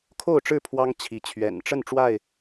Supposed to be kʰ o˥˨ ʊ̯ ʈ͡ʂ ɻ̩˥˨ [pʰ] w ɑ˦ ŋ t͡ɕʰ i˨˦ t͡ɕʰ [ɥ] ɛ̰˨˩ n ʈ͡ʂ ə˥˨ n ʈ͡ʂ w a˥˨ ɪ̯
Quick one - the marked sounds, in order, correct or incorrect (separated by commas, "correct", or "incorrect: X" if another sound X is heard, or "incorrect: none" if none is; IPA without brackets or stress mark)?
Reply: correct, correct